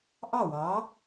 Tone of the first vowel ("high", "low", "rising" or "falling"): falling